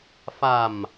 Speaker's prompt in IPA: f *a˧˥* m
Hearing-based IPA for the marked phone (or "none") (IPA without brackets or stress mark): a˨˩